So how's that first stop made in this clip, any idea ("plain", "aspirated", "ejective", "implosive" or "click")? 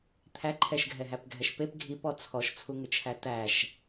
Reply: aspirated